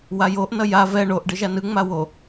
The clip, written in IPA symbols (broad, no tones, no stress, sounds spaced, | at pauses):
w a j o ʔ n ʌ j a v ɛ ɳ o ʔ ɖ ɯ ʒ a n ɯ ŋ͡m a w o